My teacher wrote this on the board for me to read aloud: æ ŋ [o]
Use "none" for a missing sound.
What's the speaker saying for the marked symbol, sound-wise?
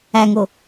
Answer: o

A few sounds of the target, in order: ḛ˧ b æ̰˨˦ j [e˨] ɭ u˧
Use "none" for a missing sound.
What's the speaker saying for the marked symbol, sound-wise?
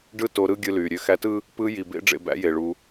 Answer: e˨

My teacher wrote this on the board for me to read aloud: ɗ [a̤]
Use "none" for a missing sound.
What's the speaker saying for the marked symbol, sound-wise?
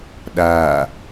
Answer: a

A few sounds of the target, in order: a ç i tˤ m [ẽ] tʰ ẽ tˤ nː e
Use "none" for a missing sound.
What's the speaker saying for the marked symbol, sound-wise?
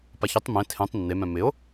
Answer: ẽ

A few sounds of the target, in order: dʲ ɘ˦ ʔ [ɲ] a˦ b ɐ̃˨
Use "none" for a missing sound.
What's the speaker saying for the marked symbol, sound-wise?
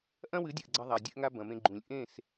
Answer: ŋ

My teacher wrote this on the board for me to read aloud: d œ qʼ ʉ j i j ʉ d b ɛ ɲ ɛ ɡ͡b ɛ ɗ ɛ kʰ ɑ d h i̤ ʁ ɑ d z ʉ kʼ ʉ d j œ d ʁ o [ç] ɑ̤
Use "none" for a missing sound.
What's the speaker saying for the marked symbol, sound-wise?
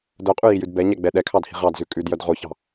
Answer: ç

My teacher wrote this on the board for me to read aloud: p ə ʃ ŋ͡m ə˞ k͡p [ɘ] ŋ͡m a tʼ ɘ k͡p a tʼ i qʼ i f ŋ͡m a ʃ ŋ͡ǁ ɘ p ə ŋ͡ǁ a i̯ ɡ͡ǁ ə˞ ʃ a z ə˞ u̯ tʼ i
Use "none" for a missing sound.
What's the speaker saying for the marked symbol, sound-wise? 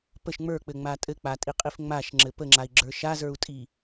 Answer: ɘ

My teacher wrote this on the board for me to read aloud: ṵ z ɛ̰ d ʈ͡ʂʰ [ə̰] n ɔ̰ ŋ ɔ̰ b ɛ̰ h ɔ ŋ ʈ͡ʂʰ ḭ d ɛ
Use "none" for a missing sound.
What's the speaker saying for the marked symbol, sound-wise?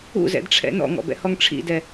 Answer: ɛ̰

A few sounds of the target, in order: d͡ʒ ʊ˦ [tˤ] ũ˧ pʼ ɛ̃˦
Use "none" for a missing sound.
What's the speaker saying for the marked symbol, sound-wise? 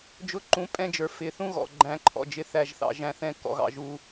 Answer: ǃ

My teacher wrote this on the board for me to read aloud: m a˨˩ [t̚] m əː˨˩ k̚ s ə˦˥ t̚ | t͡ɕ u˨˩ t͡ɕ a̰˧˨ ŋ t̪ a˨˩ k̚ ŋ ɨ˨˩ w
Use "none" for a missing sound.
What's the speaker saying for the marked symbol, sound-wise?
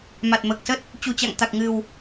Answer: t̚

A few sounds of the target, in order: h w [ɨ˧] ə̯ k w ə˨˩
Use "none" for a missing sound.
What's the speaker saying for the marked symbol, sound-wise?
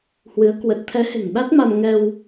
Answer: ɨ˨˦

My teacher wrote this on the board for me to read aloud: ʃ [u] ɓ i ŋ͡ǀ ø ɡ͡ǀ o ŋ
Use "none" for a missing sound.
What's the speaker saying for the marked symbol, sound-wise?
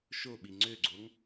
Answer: o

